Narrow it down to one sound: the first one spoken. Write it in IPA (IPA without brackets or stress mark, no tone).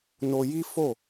n